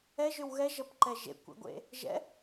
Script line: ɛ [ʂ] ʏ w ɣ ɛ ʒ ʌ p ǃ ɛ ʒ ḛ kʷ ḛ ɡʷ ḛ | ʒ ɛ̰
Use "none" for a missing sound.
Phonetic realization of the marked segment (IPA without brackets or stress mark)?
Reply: ʒ